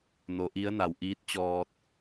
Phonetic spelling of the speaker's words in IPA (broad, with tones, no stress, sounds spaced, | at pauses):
n o˩˧ ʔ i˧˥ ə̯ n a˩ w ʔ iː˧˥ t̚ t͡ɕ ɔː˧ t̚